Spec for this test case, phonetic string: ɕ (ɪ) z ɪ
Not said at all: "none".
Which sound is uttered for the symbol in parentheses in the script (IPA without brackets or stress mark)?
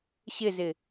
ɪ